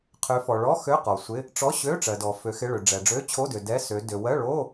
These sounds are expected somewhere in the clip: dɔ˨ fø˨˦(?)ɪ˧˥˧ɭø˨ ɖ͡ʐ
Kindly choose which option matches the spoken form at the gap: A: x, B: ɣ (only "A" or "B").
A